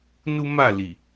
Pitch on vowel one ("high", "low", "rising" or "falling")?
high